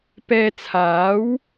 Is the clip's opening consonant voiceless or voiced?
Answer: voiceless